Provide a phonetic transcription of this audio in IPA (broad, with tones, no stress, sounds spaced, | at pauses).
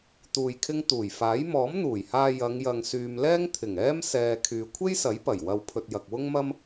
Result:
t̪ uː˧ j kʰ ɪ˥ ŋ t̪ uː˨˩ j f aː˨˥ j m ɔː˨˥ m n̪ uː˨˩ j h aː˧ j ɐ˨˧ ŋ j ɐ˨ ŋ s yː˨ m l ɛː˥ ŋ t̪ʰ ɪ˨˩ ŋ ɛː˥ m s ɛː˧ kʰ yː˨ kʷʰ e˥ j s ɐ˨˥ j p ɐ˨˩ j w ɐ˧ w pʰ ɵ˧ t̚ j ɐ˨ k̚ w ʊ˥ ŋ m ɐ˥ m